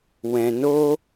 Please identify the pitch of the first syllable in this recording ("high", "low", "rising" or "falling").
low